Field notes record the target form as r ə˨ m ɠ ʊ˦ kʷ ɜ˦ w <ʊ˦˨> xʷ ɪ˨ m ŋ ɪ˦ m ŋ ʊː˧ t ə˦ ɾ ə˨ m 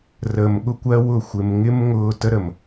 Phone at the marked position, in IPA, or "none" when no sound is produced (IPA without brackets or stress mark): ʊ˦˨